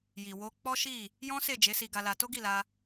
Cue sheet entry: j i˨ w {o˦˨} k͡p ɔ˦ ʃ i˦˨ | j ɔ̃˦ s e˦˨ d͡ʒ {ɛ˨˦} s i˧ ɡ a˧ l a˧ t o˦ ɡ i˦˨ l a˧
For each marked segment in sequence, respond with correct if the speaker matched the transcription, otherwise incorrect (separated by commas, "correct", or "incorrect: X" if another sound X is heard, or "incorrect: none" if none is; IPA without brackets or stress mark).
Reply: incorrect: o˧, incorrect: e˨˦